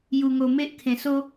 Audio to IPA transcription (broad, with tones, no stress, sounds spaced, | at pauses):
j u˨˩ ŋ o˨˩ m e˦ ʔ kʰ ẽ˨˩ s o˦